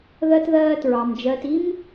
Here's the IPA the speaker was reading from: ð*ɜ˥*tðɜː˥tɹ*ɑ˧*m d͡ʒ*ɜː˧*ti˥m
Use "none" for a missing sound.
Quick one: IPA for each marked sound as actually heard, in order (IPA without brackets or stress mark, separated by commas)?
ɜ˥, ɑ˧, ɜː˧